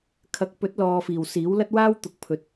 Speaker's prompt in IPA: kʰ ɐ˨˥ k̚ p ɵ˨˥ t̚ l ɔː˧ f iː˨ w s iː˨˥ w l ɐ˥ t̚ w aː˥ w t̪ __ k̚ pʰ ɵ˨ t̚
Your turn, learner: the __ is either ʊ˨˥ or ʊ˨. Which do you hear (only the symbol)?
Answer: ʊ˨˥